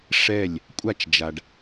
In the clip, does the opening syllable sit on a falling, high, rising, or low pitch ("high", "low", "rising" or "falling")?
falling